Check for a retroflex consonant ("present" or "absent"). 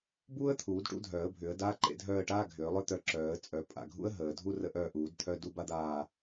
present